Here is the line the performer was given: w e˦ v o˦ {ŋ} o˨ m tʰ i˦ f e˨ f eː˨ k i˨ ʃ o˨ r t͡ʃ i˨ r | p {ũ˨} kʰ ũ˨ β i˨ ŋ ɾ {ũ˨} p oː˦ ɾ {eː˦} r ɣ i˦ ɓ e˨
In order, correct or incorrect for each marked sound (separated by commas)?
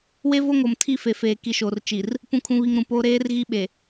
correct, correct, correct, correct